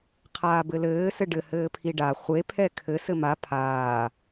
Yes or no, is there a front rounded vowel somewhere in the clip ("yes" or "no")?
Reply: no